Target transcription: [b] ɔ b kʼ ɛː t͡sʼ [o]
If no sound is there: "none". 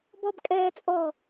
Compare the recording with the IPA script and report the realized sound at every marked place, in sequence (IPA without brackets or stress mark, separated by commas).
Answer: b, ɔ